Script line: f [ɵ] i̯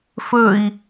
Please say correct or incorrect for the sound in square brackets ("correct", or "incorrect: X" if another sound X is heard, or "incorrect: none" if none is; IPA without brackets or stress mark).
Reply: correct